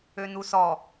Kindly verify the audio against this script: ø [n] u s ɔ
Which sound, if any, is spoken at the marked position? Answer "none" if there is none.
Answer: n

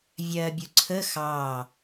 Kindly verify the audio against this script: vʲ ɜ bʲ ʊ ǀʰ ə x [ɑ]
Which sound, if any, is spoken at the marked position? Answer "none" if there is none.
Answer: ɑ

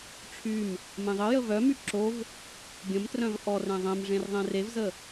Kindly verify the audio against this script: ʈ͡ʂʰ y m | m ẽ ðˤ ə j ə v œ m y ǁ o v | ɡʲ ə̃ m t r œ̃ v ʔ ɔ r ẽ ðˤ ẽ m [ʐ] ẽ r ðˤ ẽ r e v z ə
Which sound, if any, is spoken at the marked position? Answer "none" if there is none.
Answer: ʐ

